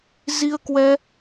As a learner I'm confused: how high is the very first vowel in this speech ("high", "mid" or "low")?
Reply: high